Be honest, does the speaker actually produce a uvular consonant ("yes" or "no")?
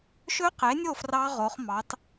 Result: yes